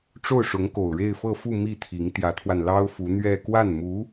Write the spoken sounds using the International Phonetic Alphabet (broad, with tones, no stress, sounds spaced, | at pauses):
ʈ͡ʂ o˥˩ ʊ̯ ʂ ʊ˧˥ ŋ k o˨˩ ʊ̯ ɻ e˥˧ ɪ̯ f ɤ˥˧ f u˥˧ m i˥˩ t̪ʰ i˧˥ ŋ t̪ j ä˧˥ t̪ʰ w a˧ n l ɑ˥ ʊ̯ f u˧˥ n̪ ɥ ɛ˥˧ k w a˥˩ n m u˧˥